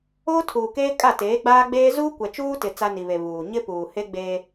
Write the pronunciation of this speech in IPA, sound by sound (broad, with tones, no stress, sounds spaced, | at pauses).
oː˦ tʰ uː˨ k eː˦ kʼ a˦˨ t eː˨˦ ɡ͡b aː˦ ɡ͡b eː˦ z uː˦ kʷ ɛ˨ t͡ʃ uː˦ t ɪ˨ t͡s a˦ n i˨ β e˨ β uː˨ ɲ ɪ˦ p uː˨ h e˦ ɡ͡b eː˦